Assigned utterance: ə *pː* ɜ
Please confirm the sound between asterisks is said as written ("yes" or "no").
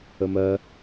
no